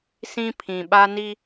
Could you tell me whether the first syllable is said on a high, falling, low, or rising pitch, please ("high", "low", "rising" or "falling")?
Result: high